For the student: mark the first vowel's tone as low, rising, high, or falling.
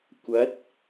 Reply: rising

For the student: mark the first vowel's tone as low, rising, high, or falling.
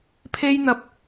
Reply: high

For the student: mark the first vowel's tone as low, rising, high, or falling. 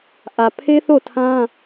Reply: low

